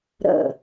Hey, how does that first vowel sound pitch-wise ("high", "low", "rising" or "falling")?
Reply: falling